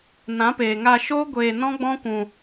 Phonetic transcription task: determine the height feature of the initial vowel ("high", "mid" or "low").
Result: low